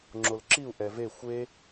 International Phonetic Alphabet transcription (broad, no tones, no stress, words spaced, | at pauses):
ŋ͡ǁolǁiu̯ ʔɛve xʷe